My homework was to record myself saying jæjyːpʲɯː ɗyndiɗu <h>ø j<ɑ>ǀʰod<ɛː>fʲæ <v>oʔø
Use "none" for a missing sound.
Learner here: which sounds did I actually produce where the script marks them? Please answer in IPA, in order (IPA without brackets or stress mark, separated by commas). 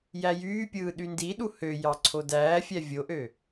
h, ɑ, æː, vʲ